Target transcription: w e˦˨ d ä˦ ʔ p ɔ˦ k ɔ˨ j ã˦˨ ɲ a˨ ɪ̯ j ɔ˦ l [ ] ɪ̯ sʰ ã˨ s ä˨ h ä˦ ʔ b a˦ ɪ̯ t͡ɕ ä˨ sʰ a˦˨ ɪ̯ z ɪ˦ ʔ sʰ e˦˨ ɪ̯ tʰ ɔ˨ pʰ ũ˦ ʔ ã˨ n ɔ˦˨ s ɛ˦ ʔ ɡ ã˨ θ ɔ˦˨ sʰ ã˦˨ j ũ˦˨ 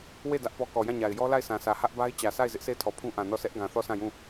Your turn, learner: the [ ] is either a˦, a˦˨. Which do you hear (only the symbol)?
a˦˨